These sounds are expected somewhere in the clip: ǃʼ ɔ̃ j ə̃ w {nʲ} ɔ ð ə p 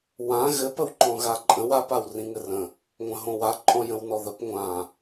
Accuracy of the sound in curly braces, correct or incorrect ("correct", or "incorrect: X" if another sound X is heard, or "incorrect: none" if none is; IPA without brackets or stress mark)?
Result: incorrect: n